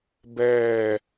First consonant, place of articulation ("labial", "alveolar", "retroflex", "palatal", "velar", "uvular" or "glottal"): labial